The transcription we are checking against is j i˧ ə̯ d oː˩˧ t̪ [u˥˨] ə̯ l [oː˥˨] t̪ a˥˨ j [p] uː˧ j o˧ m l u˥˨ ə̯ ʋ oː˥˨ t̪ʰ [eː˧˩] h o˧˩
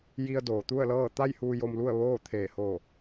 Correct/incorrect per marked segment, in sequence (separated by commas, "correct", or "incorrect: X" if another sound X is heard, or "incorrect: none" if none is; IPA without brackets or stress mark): correct, incorrect: ɤː˥˨, incorrect: h, correct